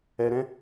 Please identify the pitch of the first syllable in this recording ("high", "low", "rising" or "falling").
low